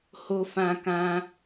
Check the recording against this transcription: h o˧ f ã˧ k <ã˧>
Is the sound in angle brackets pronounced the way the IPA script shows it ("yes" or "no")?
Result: yes